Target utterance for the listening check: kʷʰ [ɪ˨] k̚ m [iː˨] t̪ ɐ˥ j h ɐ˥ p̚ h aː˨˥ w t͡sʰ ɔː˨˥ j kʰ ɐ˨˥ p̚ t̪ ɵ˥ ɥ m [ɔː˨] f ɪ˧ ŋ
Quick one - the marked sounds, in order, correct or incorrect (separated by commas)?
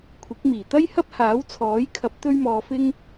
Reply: incorrect, incorrect, incorrect